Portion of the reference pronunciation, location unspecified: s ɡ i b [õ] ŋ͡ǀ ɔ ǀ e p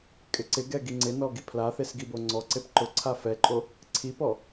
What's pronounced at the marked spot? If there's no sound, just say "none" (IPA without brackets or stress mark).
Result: o